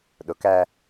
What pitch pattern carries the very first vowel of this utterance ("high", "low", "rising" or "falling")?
rising